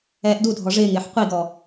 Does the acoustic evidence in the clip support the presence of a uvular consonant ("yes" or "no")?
yes